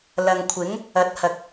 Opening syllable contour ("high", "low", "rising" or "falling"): low